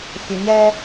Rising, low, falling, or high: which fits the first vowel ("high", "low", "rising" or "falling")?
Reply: low